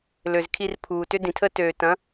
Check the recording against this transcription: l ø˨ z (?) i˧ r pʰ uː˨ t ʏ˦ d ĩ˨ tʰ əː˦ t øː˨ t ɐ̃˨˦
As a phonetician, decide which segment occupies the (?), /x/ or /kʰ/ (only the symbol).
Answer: kʰ